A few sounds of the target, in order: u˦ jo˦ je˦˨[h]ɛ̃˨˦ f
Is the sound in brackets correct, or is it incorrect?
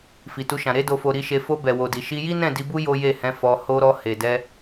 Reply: correct